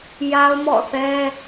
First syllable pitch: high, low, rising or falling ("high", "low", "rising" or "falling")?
high